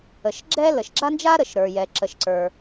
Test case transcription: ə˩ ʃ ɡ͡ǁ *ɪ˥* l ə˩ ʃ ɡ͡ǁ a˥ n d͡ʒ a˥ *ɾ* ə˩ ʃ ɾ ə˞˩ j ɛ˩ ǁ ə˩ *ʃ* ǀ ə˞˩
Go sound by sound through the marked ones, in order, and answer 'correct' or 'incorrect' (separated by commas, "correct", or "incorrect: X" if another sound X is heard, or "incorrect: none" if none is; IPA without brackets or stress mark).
incorrect: ɛ˥, correct, correct